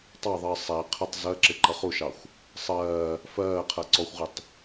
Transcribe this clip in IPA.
tˤ ɑ ðˤ əː sˤ æ qʰ ə tˤ z ɜ ǁ ɪ ǃ ʌ χ u ʃ ɑ xʷ | sˤ ɜː | f ɜː qʰ ɜ ǀ ɔ xʷ ʁ ɪ tˤ

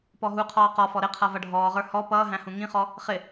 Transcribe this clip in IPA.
p ɔ ɦ u qʰ ɔː q ɔ f ɔ ɾ ɪ qʰ ʌ v ʌ ɖʱ ɔː ʁ ə˞ h ɔ p ʌː ɦ æ̃ h ũ ŋ ĩ χ ɔ | χ ɪ

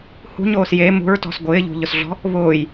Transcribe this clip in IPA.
h ṳ ɲ oː s j e m ṳ ɹ t ɔ̤ s ɡʷ ɪː ʎ ṳ ʎ ʊ s ɮ ɔ̤ | β ʊː j

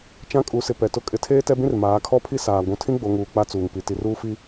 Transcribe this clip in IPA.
t͡ʃ ã˦ kʼ u˨˦ s ɪ˨ p ɛ˨ t ʊ˦ kʼ ɪ˨˦ tʰ eː˦ t ɛ˦ b ĩ˦ r m aː˨˦ kʰ ɔ˦ pʰ i˦ s aː˨ ɡʷ ũ˨ tʰ ĩ˦ ɡ͡b o˨ ŋ uː˨ k͡p a˦ t͡s uː˨ ŋ p i˨ t i˨ r uː˦ f i˦

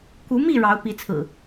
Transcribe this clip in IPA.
k u˨˦ m i˥˨ ɻ ɑ˨˦ ʊ̯ p i˨˦ t͡sʰ ɹ̩˨˩

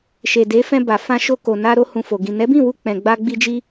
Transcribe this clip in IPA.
ʃ e˨ d e˨˦ f ɛ̃˧ b a˨ f ã˧ ʃ o˧ k o˨ n a˧ ɾ o˧ h ũ˨ f o˨ ɡ ĩ˨ n ɛ˨˦ b ĩ˦˨ w u˧ k͡p ɛ̃˨ ɡ͡b a˧ ɡ͡b i˧ d͡ʒ i˧

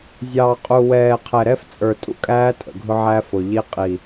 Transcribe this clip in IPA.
zʲ ɑː˨ qʼ u˨ w ɛː˨ qʰ ɛ˨ ɾ ɛ˦ f t͡sʼ ə˞˨ tʼ ṵ˦ kʼ æː˦ tʼ ə̰˨ ɡʱ ʊ˦ ʕ æ˦ f ʊ˨ ʎ i˦ qʼ i˨

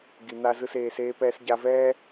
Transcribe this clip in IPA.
ɡ i˨ n̪ a˧ z ɯ˧ s eː˧ s eː˦ p ɛː˦ s ɟ a˧ v ɛː˦

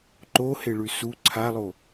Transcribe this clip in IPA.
ǃ o h e ɭ ʉ s u ǀʰ a lˠ o

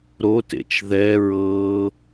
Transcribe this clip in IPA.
ɾ o t ḛ t͡ʃ ð ɛ ɹ ɤ

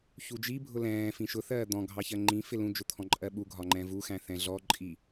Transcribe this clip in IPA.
ç u d͡ʒ i bʱ ʊ l ɛ̃ː f ĩ ʃ ʊ θ ɜː d̪ ɔ̃ ɡʱ ɑ ç ɜ ŋ͡ǃ ĩ f ɪ l ũ d͡ʒ ʊ t̪ʰ ɔ̃ ǃʼ ɜ ɓ u ɡʱ ɒ ŋ͡ǃ ɛ̃ v u x æ̃ θ ɛ̃ ɮ ɔ ǃʼ i

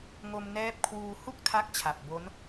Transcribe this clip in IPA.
ŋ o˧ m n ɛː˦˥ p̚ kʰ w uː˧ h u˥˩ k̚ tʰ a˦˥ k̚ t͡ɕʰ a˨˩ p̚ b o˦˥ n

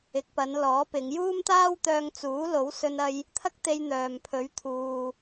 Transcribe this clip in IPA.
ɪ˨˥ k̚ p ɐ˨˧ n l ɔː˨˥ p ɪ˨˧ ŋ j uː˥ m t̪ aː˥ w t̪ œː˧ ŋ t͡s uː˨˥ l o˨˥ w s ɵ˧ n ɐ˧ j | t̪ʰ ɐ˥ k̚ t̪ e˧ j n̪ œː˨ m pʰ ɵ˨˥ ɥ t̪ʰ uː˨

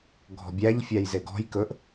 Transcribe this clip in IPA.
ɡʱ ɔ̤ bʲ æ ʎ fʲ æ j z e ɡ ɔ̤ j k ɵ ʔ

